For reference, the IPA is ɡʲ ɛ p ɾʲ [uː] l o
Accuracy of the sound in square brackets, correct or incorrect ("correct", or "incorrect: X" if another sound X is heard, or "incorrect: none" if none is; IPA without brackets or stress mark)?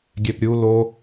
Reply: incorrect: u